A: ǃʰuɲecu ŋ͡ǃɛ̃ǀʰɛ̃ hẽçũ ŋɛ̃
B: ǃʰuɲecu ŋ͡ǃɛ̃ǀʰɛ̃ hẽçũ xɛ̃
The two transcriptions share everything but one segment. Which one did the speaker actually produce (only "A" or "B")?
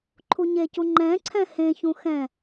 B